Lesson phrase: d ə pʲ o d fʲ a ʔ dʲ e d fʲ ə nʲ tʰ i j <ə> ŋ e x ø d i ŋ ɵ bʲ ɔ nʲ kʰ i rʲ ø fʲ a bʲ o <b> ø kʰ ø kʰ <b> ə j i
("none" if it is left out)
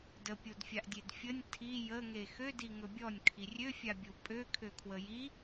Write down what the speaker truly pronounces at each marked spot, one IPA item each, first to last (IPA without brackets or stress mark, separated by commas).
ə, pʼ, w